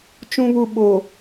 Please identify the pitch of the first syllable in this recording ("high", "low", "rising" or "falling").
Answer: low